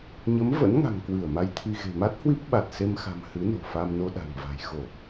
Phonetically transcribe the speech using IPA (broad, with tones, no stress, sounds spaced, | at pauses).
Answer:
ɲ ə˨˦ m v ə̰˧˥ n ŋ a̤˨˩ ŋ k w ɨ˧˩ ə̯ m a˧ j t̪ʰ i˧ ɣ e̤˨˩ m a˦˥ t̚ h w i˦˥ p̚ ɓ a˨˩ t̚ s e˧ m x a̤˨˩ m h ɨ˨˦ n o̤˨˩ f a˧ m n o˧ ɗ a̤˨˩ ŋ v a̤˨˩ j x o˧˩˨